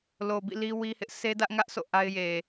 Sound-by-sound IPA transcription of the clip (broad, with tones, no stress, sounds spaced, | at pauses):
l o˨ b ḭ˦˨ l i˦ w i˦ h ɪ˦ ʔ sʰ e˦ d ä˦ ʔ ŋ ä˦ ʔ sʰ o̰˦˨ ʔ a˦ ɪ̯ j e˨